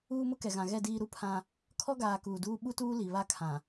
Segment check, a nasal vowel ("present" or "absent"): present